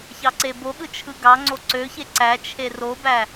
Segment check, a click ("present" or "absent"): present